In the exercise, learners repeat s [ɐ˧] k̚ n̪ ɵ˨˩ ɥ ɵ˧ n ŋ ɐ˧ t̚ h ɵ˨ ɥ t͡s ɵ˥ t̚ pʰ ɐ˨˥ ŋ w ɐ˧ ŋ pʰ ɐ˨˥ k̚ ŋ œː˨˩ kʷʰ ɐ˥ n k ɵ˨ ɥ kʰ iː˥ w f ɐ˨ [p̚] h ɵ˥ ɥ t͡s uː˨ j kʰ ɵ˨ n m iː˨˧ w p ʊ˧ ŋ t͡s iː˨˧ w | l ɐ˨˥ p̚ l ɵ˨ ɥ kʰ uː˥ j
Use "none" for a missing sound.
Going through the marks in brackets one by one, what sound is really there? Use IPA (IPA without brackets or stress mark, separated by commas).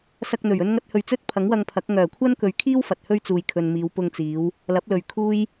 ɐ˧, t̚